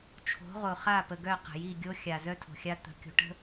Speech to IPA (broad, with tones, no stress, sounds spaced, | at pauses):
t͡ʃʰ o̤˨˦ ʁ o˨ χ a˦˨ p ə˨ ɡ œ˦˨ q ə̤˨ j i˦˨ ɡʲ o˦ xʲ a˨ z œ˦ tʰ o̤˨ xʲ a˦ t̪ ə̤˦ kʲ o̤˦ ʈ ə̤˦